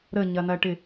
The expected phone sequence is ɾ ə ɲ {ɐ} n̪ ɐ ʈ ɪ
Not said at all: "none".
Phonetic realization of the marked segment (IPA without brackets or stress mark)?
ɐ